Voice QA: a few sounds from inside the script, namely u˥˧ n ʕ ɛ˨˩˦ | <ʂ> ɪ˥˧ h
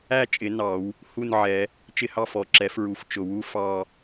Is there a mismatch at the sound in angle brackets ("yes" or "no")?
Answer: yes